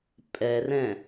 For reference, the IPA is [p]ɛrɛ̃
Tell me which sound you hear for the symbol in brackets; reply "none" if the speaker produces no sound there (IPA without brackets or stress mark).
pʼ